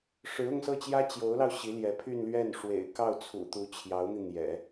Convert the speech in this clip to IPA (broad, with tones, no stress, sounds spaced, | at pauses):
ʂ ɻ̩˧˥ ʊ˥˧ ŋ s ɤ˥˩ t͡ɕ j ä˥ t͡ɕ j o˧˥ ʊ̯ l ɑ˧ ʊ̯ ɕ i˧˥ l j ɛ˧˥ pʰ y˥˧ n l ɥ ɛ˥˩ n ʂ w ḛ˨˩ ɪ̯ k ɑ˥˩ ʊ̯ t͡sʰ ṵ˨˩ t̪ u˧˥ t͡ɕʰ j ɑ˧˥ ʊ̯ n̪ i˧ n̪ j ɛ̰˨˩˦